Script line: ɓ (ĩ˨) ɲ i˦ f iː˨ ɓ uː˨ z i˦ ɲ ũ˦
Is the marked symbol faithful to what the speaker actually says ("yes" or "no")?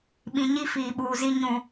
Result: yes